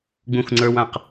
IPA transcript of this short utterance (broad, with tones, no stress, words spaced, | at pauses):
ɡ͡bũ˦˨xŋ͡ǀə˞˦w ã˦˨q